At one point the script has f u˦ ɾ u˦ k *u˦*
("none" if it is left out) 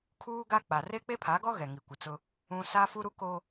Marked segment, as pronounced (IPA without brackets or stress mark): o˦